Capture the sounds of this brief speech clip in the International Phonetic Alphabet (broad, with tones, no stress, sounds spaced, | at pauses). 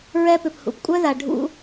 ɹ ɛ˦ p ʏ˨ p h ṵ˨ p kʷʼ œ˦ ð a˨ ɖʱ ṵ˦